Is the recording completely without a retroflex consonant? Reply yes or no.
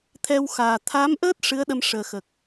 no